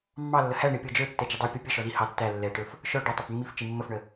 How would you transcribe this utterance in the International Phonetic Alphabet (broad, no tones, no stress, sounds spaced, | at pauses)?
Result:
mː ɑ lː ə h æ ɳ i pʲ ɔ d͡ʒ ə˞ tː ɛ d͡ʒ ɪ dˤ æ pʲ ɔ pʲ ə ʃ ɔ z i h ɑ tː æ lː ɛ ʈ ə˞ f | ʃ ɔ ɖ ʌ tˤ ə f mː i f t͡ʃ i mː ə f ɳ ə